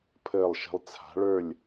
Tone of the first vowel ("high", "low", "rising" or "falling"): falling